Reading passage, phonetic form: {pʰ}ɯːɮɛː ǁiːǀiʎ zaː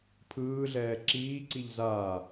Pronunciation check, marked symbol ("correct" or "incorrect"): correct